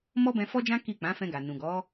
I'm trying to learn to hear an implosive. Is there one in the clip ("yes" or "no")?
no